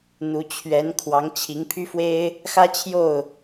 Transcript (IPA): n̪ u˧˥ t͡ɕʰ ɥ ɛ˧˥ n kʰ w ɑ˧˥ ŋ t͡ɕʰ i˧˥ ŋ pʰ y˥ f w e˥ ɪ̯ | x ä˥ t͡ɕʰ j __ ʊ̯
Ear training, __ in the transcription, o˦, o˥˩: o˥˩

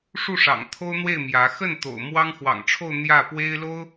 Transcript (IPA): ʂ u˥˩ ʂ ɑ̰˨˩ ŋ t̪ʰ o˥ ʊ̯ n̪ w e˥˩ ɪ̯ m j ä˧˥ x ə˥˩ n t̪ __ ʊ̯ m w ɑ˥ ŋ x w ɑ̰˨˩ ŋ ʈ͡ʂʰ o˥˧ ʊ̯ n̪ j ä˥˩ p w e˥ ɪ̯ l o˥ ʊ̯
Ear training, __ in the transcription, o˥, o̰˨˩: o̰˨˩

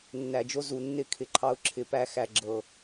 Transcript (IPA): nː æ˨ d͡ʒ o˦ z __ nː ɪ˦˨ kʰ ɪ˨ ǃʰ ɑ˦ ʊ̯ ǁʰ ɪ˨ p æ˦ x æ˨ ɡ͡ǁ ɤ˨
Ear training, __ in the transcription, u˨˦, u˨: u˨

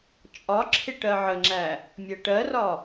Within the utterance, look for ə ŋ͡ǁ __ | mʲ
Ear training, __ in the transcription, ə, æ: æ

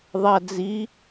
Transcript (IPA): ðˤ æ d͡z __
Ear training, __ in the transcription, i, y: i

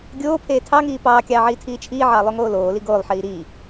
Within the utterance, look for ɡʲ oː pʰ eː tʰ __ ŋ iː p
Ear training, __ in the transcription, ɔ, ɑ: ɑ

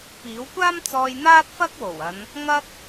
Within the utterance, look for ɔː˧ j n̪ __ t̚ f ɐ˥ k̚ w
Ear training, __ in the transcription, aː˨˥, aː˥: aː˥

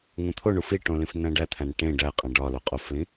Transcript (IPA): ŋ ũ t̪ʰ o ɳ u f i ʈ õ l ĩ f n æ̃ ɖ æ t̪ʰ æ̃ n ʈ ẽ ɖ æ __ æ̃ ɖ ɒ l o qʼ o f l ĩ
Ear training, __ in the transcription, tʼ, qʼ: qʼ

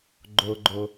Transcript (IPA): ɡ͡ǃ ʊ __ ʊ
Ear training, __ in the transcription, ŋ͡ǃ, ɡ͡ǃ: ɡ͡ǃ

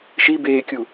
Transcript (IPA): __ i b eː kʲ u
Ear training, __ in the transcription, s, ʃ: ʃ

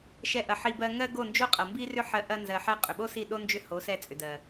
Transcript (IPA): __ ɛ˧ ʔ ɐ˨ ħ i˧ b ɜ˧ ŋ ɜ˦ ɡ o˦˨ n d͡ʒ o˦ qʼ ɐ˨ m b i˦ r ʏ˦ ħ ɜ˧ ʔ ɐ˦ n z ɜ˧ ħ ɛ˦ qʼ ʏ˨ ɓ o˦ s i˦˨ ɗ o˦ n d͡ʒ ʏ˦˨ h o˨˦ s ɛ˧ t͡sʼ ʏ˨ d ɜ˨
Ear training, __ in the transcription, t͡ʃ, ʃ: ʃ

